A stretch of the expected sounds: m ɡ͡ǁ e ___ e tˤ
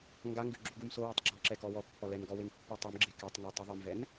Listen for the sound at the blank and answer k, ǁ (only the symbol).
k